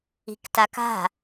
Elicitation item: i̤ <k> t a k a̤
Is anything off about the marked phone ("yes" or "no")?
no